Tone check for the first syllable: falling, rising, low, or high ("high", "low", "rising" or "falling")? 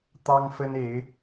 high